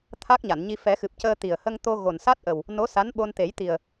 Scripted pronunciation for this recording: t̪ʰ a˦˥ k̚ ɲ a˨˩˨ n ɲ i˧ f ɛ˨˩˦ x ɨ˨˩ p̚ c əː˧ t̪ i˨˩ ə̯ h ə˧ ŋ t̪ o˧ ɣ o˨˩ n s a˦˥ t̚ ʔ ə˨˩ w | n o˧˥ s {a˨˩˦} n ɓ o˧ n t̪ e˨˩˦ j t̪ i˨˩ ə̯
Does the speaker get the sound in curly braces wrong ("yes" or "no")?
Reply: yes